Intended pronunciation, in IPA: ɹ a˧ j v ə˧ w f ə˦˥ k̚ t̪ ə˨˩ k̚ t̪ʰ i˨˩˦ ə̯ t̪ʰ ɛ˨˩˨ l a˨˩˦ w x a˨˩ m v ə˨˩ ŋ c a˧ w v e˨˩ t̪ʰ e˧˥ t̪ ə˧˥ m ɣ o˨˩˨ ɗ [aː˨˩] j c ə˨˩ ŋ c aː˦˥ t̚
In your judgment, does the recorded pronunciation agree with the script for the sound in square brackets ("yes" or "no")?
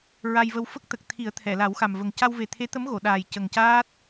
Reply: yes